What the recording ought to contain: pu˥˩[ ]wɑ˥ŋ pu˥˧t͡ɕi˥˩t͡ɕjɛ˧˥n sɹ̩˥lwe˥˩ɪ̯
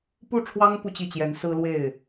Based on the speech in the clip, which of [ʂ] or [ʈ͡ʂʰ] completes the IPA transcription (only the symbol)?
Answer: ʈ͡ʂʰ